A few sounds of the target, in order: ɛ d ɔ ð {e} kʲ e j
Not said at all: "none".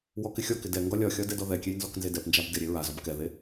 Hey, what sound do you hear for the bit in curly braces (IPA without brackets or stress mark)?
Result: ɛ